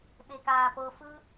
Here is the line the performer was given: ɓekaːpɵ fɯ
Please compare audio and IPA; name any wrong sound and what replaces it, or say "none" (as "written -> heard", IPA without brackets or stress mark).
ɵ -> ɤ